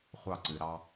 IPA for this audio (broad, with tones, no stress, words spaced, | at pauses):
χʷɑ˦˨ǀɨ˨ ɾɑ˧